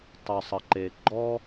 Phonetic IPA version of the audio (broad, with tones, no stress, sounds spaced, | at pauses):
tˤ ʊ˨ sˤ ə˨ ǃ e˨ ɡ͡ǃ ɔ˦